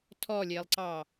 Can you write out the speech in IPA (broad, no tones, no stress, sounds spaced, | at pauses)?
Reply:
tʰ ɔ lʲ e lˠ ǀ ɑ